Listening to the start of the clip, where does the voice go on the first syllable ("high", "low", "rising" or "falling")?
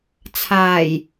low